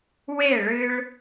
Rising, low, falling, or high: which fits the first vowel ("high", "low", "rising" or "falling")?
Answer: falling